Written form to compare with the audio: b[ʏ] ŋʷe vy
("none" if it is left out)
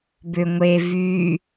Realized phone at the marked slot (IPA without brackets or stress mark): ʏ